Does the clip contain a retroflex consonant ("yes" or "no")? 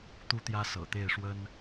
yes